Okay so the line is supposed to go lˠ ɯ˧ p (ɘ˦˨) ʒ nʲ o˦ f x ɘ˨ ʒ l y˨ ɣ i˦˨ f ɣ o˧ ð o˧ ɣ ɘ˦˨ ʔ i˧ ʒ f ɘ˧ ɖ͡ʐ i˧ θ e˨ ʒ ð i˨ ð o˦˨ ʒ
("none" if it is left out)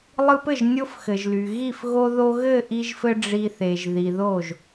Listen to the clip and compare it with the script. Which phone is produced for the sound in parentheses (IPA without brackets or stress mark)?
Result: ɘ˦˨